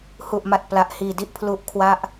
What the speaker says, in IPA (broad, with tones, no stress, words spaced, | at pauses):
hu˨˩ʔma˨˩t̚ pla˨˩ʔhiː˨˩di˥˩ʔ pʰlu˦˥ʔ kʰwa˦˥ʔ